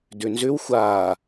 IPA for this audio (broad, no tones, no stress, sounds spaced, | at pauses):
d ʏ n z ʏ w xʷ a